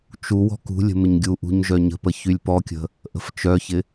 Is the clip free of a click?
yes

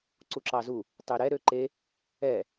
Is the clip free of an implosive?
yes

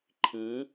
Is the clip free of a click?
no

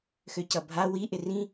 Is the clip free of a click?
yes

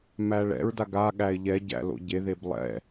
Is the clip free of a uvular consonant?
yes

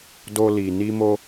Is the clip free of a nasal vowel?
yes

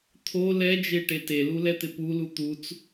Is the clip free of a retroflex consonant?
no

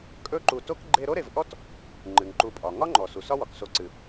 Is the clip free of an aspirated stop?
yes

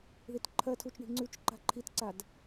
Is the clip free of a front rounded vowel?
yes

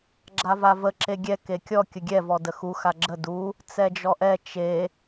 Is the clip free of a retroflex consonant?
yes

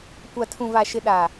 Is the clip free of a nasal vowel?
no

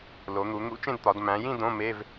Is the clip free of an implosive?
yes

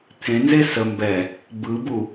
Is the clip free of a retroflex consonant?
yes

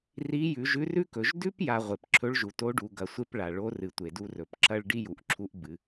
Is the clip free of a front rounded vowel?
yes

